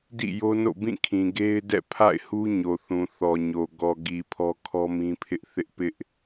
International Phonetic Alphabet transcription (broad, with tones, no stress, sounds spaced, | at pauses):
d ḭ˦˨ j o˦ n o̰˦˨ b ĩ˦˨ kʰ ĩ˨ ɡ e˦ ɪ̯ d ɛ̰˦˨ pʰ a̰˦˨ ɪ̯ h u˦ ɲ o˨ θ ũ˨ θ ɔ˨ ɲ o˨ ɡ ɔ˨ ɡ i˨ pʰ ɔ˦ kʰ ɔ˦ m ĩ˦ pʰ ɪ˦ ʔ θ ɪ˦ ʔ p ɪ˦ ʔ